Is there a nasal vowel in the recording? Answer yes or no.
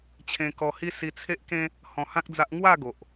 yes